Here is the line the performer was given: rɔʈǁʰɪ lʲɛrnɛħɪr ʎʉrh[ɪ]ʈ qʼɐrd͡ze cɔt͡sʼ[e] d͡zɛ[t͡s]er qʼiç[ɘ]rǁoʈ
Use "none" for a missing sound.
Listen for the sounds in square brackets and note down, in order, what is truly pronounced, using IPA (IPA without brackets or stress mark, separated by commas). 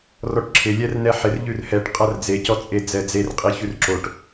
ɛ, e, d͡z, ʉ